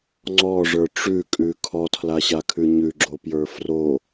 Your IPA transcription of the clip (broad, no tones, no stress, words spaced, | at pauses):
ŋ͡ǀɔʐə˞ ʈ͡ʂʉkʼʉ kʰɔtʰlaɕakʰʉ ɲʉɡ͡ǁopjə˞ fro